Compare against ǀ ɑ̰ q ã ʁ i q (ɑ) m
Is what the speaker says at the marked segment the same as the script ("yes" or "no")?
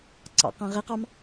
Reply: yes